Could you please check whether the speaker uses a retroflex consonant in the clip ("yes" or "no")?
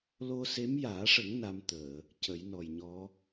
yes